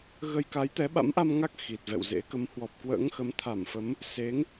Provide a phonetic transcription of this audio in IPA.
ɣə˧j ka˨˦jt̪ɛ˨˦ɓa̰˧˥mʔa˧m ŋa˦˥k̚ xi˨˩t̚vɛ̰˧˨wzḛ˧˥ kə˨˦mhwɔ˨˩p̚ kwə̰ː˧˥ŋxə˨˦m t̪ʰa˧˩mfə˨˦m | se˨˦ŋ

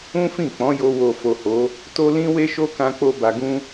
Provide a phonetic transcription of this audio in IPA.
ũ˦fĩ˦˨k͡pɔ̃˨˦jo˧ wo˨fo˨ ho˨˦ | to˦ lĩ˦we˦ʃo˦ kã˦k͡po˦ ba˧ɡũ˦

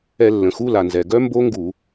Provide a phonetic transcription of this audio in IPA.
ɛ˧˩˧lːə̃˩xu˧˥˧la˩ nzɛ˩ɡœ˦˥ mbo˦˥ŋɡu˧˩˧

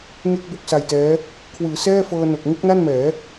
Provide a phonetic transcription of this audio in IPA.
ŋe˥˩k̚bo˥˩k̚sa˧jtɛː˦˥ | kʰwɯː˩˦sɛː˥˩fɤː˧no˨˩k̚ ŋu˥˩k̚na˥˩nmɛː˩˦

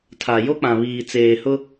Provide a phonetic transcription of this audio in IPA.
tʰa˨jo˦k͡pã˨ βiː˨t͡seː˨hʊ˦

